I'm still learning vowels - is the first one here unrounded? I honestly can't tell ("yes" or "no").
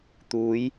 no